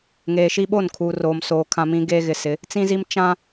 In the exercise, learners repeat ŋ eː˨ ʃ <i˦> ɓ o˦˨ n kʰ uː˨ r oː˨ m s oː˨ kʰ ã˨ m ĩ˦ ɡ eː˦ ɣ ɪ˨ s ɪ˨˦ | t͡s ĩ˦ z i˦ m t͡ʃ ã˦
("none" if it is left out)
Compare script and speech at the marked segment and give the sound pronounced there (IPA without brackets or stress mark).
i˦